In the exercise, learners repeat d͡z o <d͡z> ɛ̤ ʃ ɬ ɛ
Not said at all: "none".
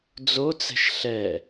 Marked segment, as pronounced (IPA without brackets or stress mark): t͡s